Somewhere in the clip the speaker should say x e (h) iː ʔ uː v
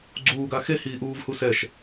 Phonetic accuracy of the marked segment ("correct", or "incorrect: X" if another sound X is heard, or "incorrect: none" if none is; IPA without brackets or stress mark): correct